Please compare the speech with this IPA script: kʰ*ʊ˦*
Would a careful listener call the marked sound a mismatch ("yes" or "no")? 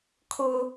no